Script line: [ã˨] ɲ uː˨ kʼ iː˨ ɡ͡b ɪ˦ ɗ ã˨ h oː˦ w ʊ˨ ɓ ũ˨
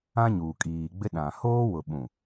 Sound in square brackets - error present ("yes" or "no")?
yes